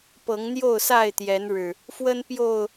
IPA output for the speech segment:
p ɤ˨˦ ŋ n̪ j o˥˨ ʊ̯ s a˥˨ ɪ̯ t̪ j ɛ˨˦ n ɻ ɻ̩˨˩ | f w ə˦ n p j o˥˨ ʊ̯

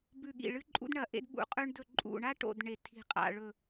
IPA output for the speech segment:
b ʉ˧˩ ɠ ḭ˧˩ ɭ ɨ˦ ǃʼ ṵ˦ d ɳ ɐ˧˩ ʔ ḛ˦ d ɓ ṵ˧˩ qʼ ʉ˦ ɳ d ɵ˧˩ ǃʼ ṵ˧˩ ɳ a˦ ʈ o̰˧˩ d ɳ e˧˩ tʰ i̤˧˩ qʼ a̰˧˩ ɭ ɵ˧˩

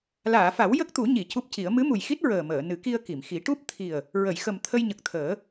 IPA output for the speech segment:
l aː˨˩˨ f a˨˩˦ w j ə˦˥ k̚ t̪ u˨˩˦ ɲ i˨˩˨ c u˦˥ p̚ c i˨˩˦ ə̯ m ɨ˧˥ m u˨˩ j x i˦˥ t̚ ɹ əː˨˩ m əː˨˩˨ n ɨ˨˩˦ k i˧ ə̯ k i˨˩˨ m x i˨˩˦ ʈ u˦˥ p̚ t̪ʰ i˨˩ ə̯ | ɹ ə˨˩˨ j x ə˨˩ m t̪ʰ ə˧ j ɲ ə˨˩ k̚ t̪ʰ əː˨˩˦

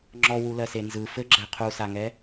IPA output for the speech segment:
ŋ͡ǁ ɔ w u l ɜ s e n z ɯ f ɘ ɡ͡ǁ ɛ qʰ u s a ŋ ɛ

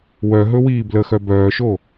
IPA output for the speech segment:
w œ ɦ ɵ w iː b l ə x œ b œː ʃ o

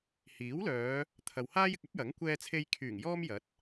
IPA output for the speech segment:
h iː˨˥ w l œː˨˧ | t̪ʰ ɐ˨ w h aː˥ j ɪ˧ k̚ ɐ˥ p̚ j ɐ˨˥ ŋ kʷ ɛː˧ t͡sʰ e˧ j kʰ yː˨˩ ŋ j ɔː˥ m j ɐ˨˥ t̚

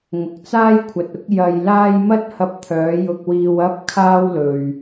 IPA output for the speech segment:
ŋ ʊ˨ k̚ t͡s aː˥ j kʷʰ ɐ˨ t̚ ʊ˨˥ k̚ j ɐ˧ j l aː˥ j m ɐ˥ t̚ h ɐ˧ p̚ t̪ʰ œː˨˧ j ʊ˧ k̚ w iː˧ w ɐ˥ p̚ kʰ aː˥ w l ɵ˨ ɥ

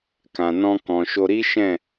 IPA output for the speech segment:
k ã˨ n ɔ̃˧ k ɔ̃˨ ʃ o˧ ɾ i˦ ʃ ɛ̃˦˨

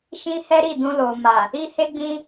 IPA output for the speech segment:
ʃ ĩ˦ h ɛ˦ ɾ i˦˨ d ũ˧ l o˨ m a˨ | i˦ h e˦ ɡ͡b ĩ˦

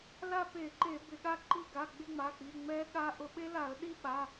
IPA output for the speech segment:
l a˥˧ p e˧˩˧ ǃ e˧˩˧ b ɪ˧˩˧ ɠ a˥˧ ǃ i˥˧ ɡ a˩˧˩ ɡ͡b ɪ˥˧ ŋ͡m a˩˧˩ k͡p i˩˧˩ ŋ͡m ɛ˦˥ ɠ a˦˥ ʔ ʊ˧˩˧ ɓ e˦˥ l a˧˩˧ ə̯ ɗ i˥˧ ɓ a˩˧˩

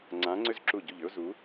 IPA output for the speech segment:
ŋ͡ǀ ã˧˥ ŋ͡ǀ ʏ˥ z ǁ u˦˨ ɟ u˦˨ ʎ ʏ˥ ʊ̯ z u˧˥

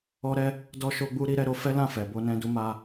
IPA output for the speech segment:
ɔ˦ ɾ ɛ˦ | d ɔ˧ ʃ o˧ ɡ͡b u˧ ɾ i˦ ɾ ɛ˦ ɾ o˧ f ɛ˦ l ã˦˨ f ɛ˨ b o˧ n ɛ̃˧ d u˧ m a˧

